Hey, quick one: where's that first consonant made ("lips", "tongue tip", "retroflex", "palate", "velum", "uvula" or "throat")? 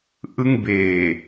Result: throat